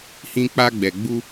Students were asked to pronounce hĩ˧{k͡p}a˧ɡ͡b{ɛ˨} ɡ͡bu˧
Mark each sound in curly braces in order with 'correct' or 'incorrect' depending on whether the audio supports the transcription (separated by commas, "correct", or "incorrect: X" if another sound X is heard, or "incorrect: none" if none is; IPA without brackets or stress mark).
correct, correct